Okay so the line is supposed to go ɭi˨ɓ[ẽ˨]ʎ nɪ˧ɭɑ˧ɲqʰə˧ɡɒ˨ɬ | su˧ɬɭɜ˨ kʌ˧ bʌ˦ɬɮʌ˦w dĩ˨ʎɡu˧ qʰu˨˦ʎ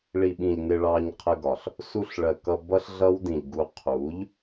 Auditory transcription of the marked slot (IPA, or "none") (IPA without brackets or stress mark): ĩ˨